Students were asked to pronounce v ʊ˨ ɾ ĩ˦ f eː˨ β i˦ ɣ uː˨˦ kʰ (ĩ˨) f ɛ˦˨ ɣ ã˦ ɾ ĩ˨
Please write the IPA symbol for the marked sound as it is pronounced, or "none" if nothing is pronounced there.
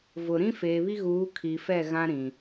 i˨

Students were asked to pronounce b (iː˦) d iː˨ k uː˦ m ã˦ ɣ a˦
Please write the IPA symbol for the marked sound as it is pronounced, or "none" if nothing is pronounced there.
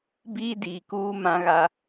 iː˦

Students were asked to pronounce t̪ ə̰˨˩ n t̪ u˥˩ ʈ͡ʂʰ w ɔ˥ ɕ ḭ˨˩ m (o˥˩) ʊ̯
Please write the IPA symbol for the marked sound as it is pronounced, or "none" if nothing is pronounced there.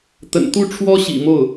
o˥˩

